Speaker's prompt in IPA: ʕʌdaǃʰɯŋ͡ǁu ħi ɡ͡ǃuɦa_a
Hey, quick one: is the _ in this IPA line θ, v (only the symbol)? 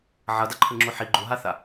θ